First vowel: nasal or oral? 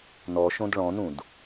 oral